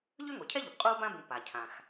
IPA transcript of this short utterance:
ʎø˥ŋo˩cʰɛ˥ʎʉ˩p qʼuː˥bã˥bũ˨ pa˩cʰã˩x

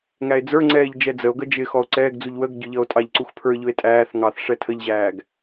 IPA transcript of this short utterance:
ŋæe̯d͡zə˞ŋ͡ǀɛːʎ d͡ʒɛd͡zəo̯ɡə d͡ʒɪ xɔo̯ǀɛːɡd͡zuʎ wəɡɟʊ ʎʌo̯tʼɑʎǀux pʰə˞ʎʊe̯ tʼæːθ ŋɑθ ʂɛtʰəʎʑæːɡ

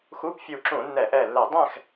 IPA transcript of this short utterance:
xuː˧˥˧pfʲuː˧˩ǁũː˧˩˧nːɛː˧˩˧ʔ ɛː˧˩lːɛ˧˩˧ dˤɛ̃˥˨x

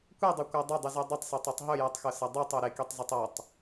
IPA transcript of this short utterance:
kʷedˤɵkʷa dˤɐdˤɨzʉ dˤɵtˤsetˤʉtˤ ɦɵjɨtˤxɵsɐ dˤitˤu ɾekitˤzɵtˤ ɐtˤ

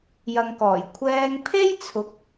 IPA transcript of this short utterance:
jɐ˨ŋkɔː˨˩j kʷʰɛː˧ŋ pʰe˥jt͡sʰʊ˨˥k̚

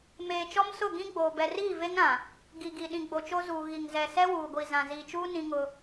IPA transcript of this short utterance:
meː˨t͡ʃɔ˦msʊ˦˨ ɡĩ˦ɡ͡boː˨ bɛ˨riː˦˨ve˦ŋɾã˨ | ɡi˨ɡi˨ ɗĩ˨ɡ͡bo˨t͡ʃo˦zuː˨ ɣi˨ŋzɛ˨ sɛ˦wuː˨ɡʷi˨ zã˨ ziː˨t͡ʃuː˦ nĩ˦ŋʊ˦

